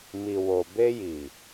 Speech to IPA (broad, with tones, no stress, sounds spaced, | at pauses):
m i˨ w o˨ b e˧ j i˨